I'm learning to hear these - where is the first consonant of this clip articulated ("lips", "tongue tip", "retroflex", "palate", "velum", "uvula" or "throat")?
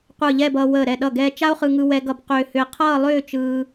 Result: uvula